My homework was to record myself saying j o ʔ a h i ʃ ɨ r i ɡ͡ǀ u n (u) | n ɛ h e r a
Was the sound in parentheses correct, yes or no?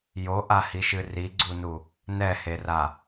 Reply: yes